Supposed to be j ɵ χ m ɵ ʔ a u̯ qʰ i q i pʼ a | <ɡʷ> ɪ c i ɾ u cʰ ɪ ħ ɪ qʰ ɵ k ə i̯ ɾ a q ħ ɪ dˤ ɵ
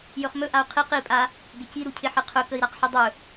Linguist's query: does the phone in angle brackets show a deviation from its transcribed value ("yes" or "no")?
yes